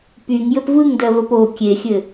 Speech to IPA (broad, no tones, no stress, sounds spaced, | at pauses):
p y ŋ j ɘ p v ɯ ŋ d ɜ v ə p o kʲ e xʲ ɘ